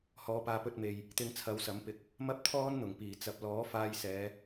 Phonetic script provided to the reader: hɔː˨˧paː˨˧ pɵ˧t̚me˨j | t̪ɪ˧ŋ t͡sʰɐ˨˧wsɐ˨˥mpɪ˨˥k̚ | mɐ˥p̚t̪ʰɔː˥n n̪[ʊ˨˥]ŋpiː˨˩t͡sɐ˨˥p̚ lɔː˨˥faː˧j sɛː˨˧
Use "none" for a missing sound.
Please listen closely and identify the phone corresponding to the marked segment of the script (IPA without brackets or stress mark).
ʊ˨˩